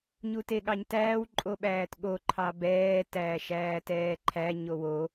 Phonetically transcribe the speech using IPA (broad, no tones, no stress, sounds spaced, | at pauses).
ɲ u t e ɠ ɑ ɲ t æː w ǃʼ o ɓ æː t ɠ o ǃʰ ɑ b ɛː t æː ʃ æː t ɛː ǃʰ æ ɲ o w o